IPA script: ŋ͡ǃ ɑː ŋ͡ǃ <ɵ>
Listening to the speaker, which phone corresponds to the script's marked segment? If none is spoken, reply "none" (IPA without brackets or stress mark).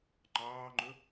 ɵ